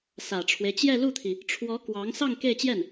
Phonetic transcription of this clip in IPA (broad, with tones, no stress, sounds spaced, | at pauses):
s ä˨˩ ʈ͡ʂʰ w e˦ ɪ̯ t͡ɕ j ɛ˥˧ l u˥˩ t̪ʰ i˩ | ʈ͡ʂʰ w ɔ˧˥ k w ɑ˧˥ ŋ s ɑ˥˧ ŋ k e˥˧ ɪ̯ t͡ɕ j ɛ˥˩ n